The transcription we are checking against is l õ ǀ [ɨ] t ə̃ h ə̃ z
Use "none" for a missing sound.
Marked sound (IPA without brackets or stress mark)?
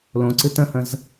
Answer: ɨ